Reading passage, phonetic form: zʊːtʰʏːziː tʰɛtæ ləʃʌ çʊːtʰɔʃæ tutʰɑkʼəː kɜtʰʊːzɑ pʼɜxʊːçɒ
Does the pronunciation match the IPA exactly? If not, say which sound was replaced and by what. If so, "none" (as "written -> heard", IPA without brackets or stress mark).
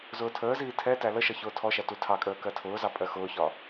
ʏː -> əː